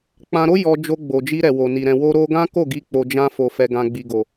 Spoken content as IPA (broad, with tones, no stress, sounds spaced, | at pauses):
k͡p ã˧ ɾ o˦ j ɔ˧ d͡ʒ o˧ ɡ͡b o˨ d͡ʒ i˧ ɾ ɛ˨ w o˨ n i˨ ɾ ɛ̃˨ w o˧ ɾ o˦ ɡ ã˦ k o˦˨ ɡ i˧ k͡p o˧ d͡ʒ ã˦ f o˧ f ɛ˧ ɡ ã˧ ɡ͡b i˨ ɡ o˨